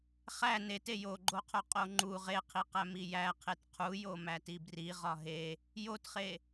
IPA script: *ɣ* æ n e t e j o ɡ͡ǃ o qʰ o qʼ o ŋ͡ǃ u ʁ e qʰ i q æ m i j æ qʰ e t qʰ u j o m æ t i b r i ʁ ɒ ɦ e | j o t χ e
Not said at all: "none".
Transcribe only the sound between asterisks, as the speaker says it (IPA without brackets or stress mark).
χ